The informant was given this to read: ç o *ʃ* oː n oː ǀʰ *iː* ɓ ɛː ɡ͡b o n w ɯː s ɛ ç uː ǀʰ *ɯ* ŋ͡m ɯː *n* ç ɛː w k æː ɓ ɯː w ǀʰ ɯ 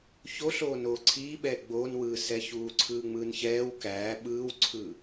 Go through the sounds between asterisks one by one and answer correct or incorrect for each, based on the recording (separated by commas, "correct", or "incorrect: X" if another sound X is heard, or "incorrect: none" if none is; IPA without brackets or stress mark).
incorrect: ɬ, correct, incorrect: ɯː, correct